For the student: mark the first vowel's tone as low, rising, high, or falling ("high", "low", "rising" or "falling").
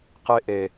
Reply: high